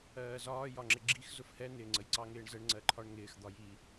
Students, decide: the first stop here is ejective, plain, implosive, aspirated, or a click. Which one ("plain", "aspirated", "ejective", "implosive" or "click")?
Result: click